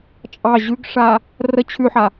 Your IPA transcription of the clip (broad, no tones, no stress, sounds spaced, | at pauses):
t͡ʃʼ ɑ ʑ ʉ ɡ ʂ a | r ə t͡ɕʰ ʉ ħ a